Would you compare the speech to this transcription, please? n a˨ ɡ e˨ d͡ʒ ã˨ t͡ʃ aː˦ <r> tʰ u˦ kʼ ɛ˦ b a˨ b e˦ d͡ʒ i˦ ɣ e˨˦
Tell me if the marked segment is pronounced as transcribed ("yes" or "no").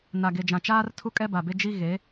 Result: yes